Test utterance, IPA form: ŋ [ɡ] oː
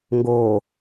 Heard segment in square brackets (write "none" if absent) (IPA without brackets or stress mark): ɡ